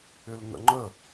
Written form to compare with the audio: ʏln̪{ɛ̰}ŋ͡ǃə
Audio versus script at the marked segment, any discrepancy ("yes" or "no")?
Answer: yes